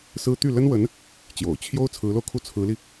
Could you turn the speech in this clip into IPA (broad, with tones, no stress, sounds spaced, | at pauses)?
s ɹ̩˥ t̪ y˥˩ l ə˥ n w ə˧˥ n | t͡ɕ j o̰˨˩ ʊ̯ t͡ɕʰ j o˥ ʊ̯ t͡sʰ ɹ̩˧˥ l o˧ ʊ̯ kʰ u˥˩ t͡sʰ ɹ̩˧˥ l i˧